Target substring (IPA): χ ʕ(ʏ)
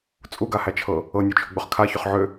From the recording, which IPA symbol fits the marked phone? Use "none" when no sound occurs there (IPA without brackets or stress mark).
ʏ